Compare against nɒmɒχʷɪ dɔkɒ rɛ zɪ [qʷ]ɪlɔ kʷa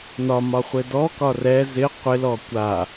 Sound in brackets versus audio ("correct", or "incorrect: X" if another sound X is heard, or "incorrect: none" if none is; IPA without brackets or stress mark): correct